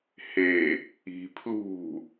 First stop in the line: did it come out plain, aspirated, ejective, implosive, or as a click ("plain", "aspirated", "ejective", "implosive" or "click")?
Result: aspirated